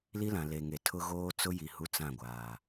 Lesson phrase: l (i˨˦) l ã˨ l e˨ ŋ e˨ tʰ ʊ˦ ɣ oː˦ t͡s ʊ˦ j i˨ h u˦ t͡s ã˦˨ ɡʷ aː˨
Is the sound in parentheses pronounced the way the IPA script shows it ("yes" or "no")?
no